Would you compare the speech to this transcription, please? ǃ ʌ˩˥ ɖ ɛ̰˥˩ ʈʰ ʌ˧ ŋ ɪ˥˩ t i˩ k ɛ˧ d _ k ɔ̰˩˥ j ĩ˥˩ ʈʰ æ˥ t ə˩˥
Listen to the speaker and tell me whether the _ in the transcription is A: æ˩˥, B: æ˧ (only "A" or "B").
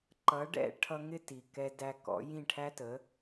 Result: B